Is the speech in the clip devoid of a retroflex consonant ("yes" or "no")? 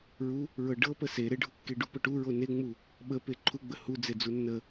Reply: no